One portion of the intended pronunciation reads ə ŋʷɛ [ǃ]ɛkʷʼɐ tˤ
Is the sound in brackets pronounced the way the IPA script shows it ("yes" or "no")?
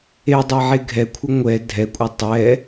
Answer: no